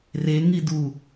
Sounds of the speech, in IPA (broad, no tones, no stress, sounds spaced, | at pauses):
r e ŋ i d u